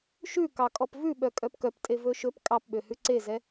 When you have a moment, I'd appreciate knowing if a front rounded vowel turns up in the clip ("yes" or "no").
yes